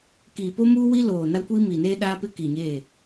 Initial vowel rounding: unrounded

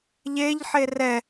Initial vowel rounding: unrounded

